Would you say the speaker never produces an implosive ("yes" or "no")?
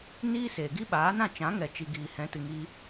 no